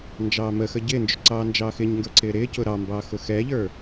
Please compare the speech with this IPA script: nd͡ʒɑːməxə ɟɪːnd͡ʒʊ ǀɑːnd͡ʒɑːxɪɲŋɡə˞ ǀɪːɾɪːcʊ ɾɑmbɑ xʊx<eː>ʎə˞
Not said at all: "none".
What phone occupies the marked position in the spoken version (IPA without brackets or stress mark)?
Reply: ɛː